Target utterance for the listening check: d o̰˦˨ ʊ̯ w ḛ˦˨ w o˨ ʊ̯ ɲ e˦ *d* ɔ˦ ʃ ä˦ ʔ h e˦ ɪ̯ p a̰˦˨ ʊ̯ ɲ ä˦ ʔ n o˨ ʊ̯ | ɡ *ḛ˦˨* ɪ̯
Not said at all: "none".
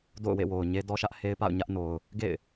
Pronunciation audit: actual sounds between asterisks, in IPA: d, ḛ˦˨

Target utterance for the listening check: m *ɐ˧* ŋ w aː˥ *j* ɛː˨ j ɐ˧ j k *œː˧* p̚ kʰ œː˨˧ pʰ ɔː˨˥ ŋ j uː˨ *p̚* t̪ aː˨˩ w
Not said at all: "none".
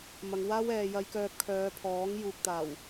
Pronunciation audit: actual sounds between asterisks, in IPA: ɐ˨, w, œː˧, k̚

